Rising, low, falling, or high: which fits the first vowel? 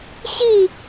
falling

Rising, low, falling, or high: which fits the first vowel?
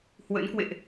rising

